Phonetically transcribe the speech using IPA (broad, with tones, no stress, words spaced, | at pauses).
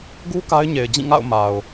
ɡu˦ ka˦ɪ̯ɲe˨ɪ̯ d͡ʑĩ˦˨ŋa̰˦˨ʊ̯ ma˨ʊ̯